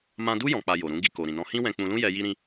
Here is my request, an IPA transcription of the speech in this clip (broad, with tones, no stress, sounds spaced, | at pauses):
m ã˦ d u˦ j ɔ̃˧ k͡p a˧ j o˨ ɾ ũ˨˦ ɡ i˧ k o˨ ɾ ĩ˨ n ɔ̃˧ h ĩ˦ w ɛ̃˧ k͡p ũ˧ l ũ˦ j ɛ˦ j i˦ ɾ ĩ˦